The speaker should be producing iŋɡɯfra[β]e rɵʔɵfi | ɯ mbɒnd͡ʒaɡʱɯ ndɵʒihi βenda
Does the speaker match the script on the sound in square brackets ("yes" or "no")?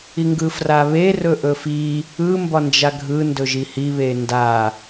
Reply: yes